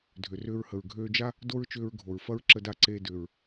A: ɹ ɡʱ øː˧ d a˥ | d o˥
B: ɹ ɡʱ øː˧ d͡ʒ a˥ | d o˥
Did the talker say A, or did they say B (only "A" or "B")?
B